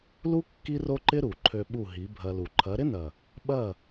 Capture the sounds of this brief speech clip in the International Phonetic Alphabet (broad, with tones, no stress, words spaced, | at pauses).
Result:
lu˦ kːi˦ro˦ǃɪ˦ ɾu˨ǃʰø˧ ɓu˦˨ɦi˨˦ bʱɐ˧lu˨ ǃʰɐ˨˦ ɾɪ˦nɐ˨ | ɓɐ˦˨